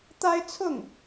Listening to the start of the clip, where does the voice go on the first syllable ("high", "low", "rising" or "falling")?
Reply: high